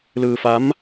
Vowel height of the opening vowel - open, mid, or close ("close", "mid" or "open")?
close